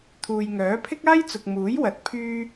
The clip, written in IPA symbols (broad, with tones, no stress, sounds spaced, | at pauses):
t̪ʰ uː˨ j ŋ œː˨˥ pʰ ɪ˥ k̚ aː˥ j t͡s ʊ˨ k̚ m uː˨˥ j w ɐ˨ t̚ pʰ yː˧